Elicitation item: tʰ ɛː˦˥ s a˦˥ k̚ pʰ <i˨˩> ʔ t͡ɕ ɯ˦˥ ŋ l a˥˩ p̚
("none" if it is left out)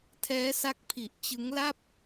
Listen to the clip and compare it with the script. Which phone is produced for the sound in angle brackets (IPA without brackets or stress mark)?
i˨˩